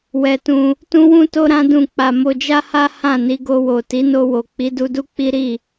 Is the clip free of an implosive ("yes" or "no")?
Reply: yes